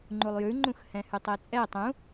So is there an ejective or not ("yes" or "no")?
yes